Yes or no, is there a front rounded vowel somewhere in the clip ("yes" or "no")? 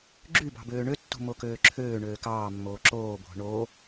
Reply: yes